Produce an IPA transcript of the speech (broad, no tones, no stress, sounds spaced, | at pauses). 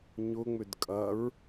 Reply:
ɲ ʊ ŋ͡m ʏ d kʼ ɐ ɹ